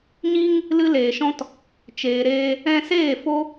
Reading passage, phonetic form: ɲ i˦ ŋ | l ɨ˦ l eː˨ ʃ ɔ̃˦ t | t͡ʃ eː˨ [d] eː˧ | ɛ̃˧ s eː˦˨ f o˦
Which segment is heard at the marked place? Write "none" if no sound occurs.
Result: ɾ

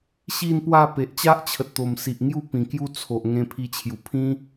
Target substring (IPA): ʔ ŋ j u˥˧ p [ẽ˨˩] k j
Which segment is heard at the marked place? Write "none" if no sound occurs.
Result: ĩ˨˩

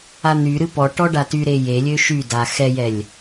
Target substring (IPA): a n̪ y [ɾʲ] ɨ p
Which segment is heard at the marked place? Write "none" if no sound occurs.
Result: ɾ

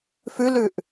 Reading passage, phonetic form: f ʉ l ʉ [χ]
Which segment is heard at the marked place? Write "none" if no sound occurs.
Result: ʔ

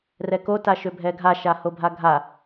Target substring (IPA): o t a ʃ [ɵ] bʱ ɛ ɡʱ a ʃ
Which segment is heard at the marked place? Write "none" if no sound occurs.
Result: ø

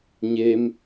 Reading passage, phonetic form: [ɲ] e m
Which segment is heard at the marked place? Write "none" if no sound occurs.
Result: ɲ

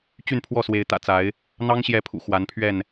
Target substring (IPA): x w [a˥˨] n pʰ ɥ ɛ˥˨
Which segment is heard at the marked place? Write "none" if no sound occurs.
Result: a˨˦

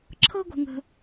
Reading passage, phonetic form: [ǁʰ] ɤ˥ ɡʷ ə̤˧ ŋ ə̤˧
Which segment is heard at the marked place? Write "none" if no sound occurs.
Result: ǁʰ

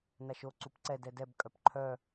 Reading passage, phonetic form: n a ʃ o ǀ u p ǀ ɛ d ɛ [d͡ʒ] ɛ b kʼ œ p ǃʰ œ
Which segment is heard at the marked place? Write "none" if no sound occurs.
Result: d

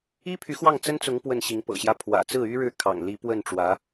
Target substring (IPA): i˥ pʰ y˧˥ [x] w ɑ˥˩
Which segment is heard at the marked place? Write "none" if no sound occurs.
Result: x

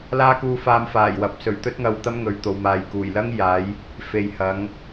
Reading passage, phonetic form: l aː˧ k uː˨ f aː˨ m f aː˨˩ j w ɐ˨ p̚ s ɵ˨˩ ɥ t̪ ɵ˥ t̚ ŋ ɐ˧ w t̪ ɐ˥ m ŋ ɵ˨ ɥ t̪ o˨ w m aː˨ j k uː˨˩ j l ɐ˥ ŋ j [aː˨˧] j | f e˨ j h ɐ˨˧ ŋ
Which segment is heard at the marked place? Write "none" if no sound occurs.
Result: aː˨˧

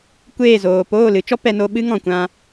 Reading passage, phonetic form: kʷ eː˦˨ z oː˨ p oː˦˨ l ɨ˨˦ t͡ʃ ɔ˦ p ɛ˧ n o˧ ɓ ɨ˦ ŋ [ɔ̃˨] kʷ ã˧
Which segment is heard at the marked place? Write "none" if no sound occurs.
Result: ɔ̃˨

